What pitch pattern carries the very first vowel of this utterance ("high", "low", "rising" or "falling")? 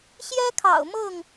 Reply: high